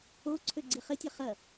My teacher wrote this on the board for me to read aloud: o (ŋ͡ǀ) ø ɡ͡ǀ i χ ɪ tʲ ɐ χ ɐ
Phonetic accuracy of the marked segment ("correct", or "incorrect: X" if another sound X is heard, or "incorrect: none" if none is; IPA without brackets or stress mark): incorrect: ǀʰ